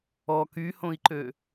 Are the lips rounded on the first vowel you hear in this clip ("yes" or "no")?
yes